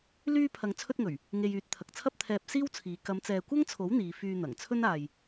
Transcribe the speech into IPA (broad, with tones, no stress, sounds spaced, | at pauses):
l yː˥ pʰ ɐ˧ ŋ t͡sʰ ɵ˥ t̚ ŋ ɵ˨˩ ɥ | ŋ e˧ j yː˨˥ t̚ t̪ʰ ɐ˨ k̚ t͡sʰ ɐ˥ p̚ t̪ʰ ɛː˧ p̚ s iː˥ w t͡sʰ iː˨˧ k ɐ˨˧ m t͡s ɛː˨ kʷ ɐ˥ ŋ t͡sʰ o˨˥ w n̪ iː˨˧ f yː˧ n̪ ɐ˨˩ ŋ t͡sʰ ɵ˥ n aː˨ j